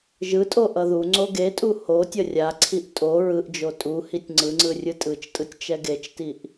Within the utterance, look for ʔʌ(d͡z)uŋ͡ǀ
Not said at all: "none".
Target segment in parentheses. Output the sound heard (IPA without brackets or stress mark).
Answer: ð